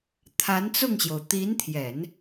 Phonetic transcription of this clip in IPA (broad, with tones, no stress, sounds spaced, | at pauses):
t̪ʰ a˧˥ n t͡s ʊ˥˩ ŋ ɕ j o˩ ʊ̯ t̪ i˧˥ n t̪ʰ j ɛ˨˩˦ n